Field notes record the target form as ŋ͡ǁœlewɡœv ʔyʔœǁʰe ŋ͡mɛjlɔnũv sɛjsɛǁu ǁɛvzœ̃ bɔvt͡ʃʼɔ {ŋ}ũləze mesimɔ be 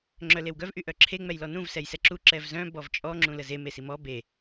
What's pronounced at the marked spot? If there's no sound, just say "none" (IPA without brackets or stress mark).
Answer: ŋ͡ǁ